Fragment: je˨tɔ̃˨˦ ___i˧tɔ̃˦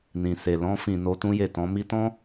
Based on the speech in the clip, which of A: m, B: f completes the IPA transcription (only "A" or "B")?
A